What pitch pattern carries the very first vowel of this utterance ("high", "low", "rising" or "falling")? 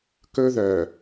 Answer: high